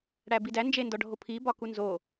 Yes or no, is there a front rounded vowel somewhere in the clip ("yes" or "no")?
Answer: no